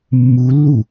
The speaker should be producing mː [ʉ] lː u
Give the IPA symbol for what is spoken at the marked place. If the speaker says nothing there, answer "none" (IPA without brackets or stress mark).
u